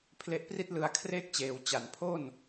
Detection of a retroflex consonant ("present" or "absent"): absent